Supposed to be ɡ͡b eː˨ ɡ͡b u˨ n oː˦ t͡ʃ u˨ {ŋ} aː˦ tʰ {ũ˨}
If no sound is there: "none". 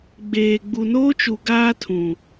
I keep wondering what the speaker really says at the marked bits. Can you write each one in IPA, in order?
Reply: ɡ, ũ˨

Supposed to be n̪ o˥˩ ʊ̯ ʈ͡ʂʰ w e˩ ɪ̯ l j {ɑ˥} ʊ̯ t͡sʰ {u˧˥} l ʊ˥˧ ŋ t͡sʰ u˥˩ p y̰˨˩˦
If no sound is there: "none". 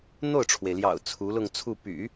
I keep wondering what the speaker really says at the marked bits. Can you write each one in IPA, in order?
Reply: ɑ̰˨˩, u˧˥

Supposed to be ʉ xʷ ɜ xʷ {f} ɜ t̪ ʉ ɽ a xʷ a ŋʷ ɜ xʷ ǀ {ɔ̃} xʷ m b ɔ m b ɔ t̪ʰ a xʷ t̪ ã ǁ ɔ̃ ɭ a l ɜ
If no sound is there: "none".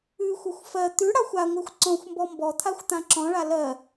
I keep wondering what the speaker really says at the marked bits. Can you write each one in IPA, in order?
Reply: f, ɔ̃

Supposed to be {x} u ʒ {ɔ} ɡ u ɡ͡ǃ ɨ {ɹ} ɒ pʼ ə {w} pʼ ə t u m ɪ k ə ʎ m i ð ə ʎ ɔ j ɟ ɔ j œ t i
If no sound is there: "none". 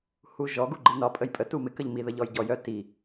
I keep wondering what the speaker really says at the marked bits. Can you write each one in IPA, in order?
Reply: h, ɔ, n, j

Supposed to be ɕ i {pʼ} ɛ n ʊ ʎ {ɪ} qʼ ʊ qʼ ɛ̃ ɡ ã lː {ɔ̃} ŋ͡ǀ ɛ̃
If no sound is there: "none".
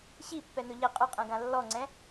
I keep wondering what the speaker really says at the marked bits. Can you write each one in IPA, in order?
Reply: pː, ɪ, ɔ

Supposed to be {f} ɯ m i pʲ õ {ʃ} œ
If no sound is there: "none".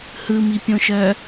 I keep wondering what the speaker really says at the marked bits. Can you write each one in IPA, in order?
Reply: h, ʃ

